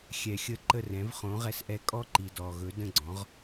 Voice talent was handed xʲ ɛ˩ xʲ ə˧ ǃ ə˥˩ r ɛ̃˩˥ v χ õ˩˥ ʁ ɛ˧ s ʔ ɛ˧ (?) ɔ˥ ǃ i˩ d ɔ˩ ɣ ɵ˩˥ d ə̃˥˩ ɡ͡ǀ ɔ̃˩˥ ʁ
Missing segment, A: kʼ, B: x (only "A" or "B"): A